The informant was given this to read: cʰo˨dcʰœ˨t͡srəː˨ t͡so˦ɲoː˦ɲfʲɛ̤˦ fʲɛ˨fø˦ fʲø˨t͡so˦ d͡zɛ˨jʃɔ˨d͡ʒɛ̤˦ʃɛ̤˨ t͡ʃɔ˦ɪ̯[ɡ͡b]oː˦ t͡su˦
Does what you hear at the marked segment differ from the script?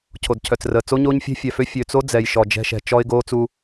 yes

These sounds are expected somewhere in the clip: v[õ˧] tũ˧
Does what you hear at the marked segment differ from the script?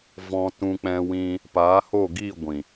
yes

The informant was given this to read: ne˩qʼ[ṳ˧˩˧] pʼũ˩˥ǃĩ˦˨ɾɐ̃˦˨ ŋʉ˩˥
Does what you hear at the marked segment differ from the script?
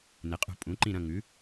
no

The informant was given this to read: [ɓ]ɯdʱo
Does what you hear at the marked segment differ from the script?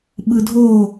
no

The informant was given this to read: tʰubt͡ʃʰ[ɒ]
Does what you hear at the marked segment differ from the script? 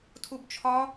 no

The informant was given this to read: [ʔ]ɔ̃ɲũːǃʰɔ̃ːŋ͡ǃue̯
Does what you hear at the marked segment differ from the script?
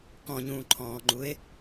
yes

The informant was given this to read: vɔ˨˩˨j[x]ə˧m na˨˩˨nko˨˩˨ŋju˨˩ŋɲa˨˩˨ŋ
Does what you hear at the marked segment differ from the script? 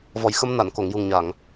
no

